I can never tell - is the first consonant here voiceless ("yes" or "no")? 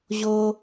no